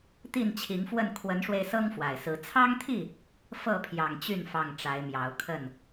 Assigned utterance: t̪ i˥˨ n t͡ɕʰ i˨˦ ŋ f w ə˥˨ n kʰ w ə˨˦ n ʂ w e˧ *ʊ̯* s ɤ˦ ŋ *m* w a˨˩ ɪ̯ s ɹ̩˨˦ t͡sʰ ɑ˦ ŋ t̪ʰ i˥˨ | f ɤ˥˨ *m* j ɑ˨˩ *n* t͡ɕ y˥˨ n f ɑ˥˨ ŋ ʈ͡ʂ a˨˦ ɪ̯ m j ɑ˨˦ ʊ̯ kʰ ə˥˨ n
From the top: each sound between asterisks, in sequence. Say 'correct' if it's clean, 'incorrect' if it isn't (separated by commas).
incorrect, incorrect, incorrect, incorrect